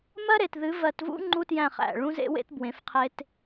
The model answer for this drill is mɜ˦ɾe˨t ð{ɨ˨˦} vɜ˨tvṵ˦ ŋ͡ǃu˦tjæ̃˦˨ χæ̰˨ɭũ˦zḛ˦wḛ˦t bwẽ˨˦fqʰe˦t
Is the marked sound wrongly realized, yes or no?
no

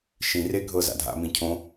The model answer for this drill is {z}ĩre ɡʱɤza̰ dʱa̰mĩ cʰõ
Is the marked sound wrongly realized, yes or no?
yes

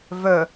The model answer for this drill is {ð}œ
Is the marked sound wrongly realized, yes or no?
yes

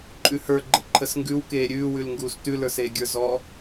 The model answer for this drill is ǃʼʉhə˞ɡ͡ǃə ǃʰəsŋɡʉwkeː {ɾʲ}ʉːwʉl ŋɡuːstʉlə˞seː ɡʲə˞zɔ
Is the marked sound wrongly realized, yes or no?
no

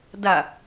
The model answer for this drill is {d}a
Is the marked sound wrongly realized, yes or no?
no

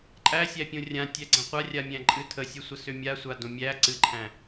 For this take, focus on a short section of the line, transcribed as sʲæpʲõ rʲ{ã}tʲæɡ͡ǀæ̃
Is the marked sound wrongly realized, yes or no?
no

